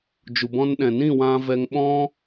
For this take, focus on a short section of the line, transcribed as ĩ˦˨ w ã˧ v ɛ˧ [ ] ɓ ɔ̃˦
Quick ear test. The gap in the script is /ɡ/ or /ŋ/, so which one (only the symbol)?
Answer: ŋ